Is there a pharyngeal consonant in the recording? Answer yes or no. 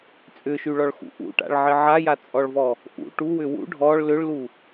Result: yes